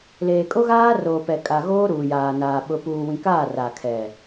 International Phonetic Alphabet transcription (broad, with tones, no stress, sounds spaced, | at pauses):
l eː˨ kʼ o˦ ɣ aː˦ r oː˨ p ɛ˨ kʼ a˨ ɣ oː˦ ɾ uː˨ j aː˨ n aː˨ ɓ ʊ˨ p uː˨ w ĩ˨ k aː˦˨ r a˨ kʰ ɛ˨